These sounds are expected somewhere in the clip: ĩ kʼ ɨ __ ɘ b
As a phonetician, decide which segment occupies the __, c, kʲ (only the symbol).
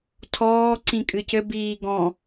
c